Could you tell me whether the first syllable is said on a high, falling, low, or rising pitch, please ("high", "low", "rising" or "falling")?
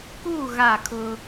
falling